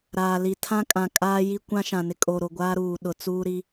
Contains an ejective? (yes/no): yes